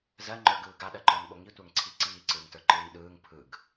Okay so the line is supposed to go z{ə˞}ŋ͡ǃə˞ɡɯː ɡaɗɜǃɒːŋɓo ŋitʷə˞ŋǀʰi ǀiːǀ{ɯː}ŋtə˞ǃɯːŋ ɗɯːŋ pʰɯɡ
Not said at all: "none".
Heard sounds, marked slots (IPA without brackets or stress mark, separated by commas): ɜ, ɯː